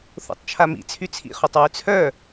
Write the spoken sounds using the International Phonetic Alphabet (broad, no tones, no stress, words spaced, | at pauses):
θo̰tˤt͡ʃʰamḭ t͡sʰyt͡sʰḭ χotˤwyt͡sʰœ